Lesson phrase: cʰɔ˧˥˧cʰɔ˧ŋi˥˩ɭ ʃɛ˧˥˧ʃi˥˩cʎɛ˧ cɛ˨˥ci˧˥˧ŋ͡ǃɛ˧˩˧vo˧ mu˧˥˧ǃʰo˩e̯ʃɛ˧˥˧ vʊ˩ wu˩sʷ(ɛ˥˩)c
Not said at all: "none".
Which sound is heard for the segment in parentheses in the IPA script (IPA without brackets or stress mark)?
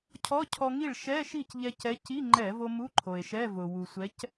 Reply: ɛ˨˥